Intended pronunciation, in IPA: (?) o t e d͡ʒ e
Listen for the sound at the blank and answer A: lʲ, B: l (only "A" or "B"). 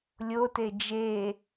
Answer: A